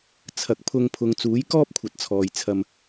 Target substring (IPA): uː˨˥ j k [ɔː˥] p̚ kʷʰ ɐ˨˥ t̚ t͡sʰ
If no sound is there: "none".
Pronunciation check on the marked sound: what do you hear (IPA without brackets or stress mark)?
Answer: ɔː˥